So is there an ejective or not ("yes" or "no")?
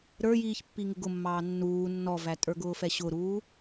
yes